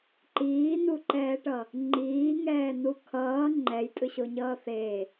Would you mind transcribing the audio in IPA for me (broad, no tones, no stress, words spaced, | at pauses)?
ǃiːnuǃɛːʈʌ | ŋ͡ǃiːŋɛːnu kʰʌː ŋ͡ǃɛjtʼɯɕoɲʌː θe